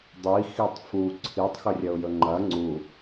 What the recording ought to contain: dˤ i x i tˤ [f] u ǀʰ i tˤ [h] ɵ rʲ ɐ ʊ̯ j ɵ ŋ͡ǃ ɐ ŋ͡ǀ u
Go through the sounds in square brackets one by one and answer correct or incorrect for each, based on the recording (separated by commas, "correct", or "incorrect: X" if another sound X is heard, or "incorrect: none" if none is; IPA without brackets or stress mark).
correct, incorrect: x